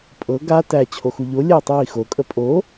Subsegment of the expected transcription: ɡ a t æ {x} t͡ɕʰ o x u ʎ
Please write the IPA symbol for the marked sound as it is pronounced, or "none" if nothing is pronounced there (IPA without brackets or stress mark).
none